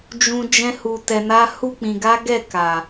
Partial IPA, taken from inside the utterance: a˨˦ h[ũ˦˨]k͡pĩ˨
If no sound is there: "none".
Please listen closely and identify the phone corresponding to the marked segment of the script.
u˦˨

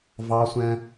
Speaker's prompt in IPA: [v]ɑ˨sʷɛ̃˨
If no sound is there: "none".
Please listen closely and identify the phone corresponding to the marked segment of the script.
v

